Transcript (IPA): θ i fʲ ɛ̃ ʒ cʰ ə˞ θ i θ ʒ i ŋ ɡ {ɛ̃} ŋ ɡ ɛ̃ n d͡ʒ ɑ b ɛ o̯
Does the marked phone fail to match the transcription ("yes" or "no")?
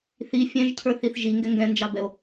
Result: yes